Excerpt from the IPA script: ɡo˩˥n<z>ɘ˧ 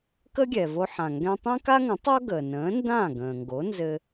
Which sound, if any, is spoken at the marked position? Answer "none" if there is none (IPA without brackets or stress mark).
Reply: z